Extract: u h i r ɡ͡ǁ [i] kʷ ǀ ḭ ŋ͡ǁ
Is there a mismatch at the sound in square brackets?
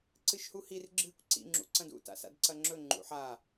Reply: yes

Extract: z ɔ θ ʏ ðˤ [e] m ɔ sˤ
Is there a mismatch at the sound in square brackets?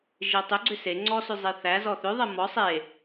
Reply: yes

